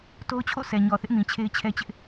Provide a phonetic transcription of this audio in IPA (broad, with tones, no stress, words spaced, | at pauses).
to˦ʊ̯t͡ɕʰo̰˦˨ sʰɛ˨ɲɔ˨θɪ˦ʔ mĩ˨t͡ɕʰe˦ɪ̯t͡ɕʰɛ˦t͡ɕɪ˦ʔ